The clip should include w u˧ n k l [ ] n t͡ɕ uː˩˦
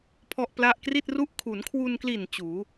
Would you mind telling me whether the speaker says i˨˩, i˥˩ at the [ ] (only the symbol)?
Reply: i˨˩